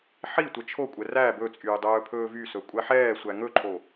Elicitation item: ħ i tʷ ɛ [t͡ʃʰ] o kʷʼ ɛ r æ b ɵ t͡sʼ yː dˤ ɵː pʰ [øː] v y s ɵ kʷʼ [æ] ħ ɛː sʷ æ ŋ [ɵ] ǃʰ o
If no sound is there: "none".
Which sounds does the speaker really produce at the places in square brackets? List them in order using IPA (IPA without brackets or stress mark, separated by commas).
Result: t͡ʃʰ, ɵː, æ, ɵ